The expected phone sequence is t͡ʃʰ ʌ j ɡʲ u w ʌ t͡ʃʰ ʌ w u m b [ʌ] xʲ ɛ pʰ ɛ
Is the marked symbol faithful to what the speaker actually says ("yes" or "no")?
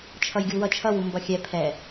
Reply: yes